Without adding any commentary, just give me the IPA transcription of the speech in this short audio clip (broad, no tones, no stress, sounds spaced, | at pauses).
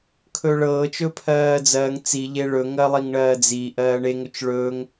kʰ ɵː ɭ ɤː t͡ʃ ɵ pʰ ɜː d͡z ɜː ŋ t͡s i ʎ e ɭ ɵ ŋ ɜ lˠ i ŋ ɳ ɜː d͡z i ʔ ɜː ɳ e ŋ ɵ t͡ʃ ɭ ɵː ŋ